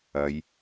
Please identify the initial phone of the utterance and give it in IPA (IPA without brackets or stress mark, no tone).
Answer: ɐ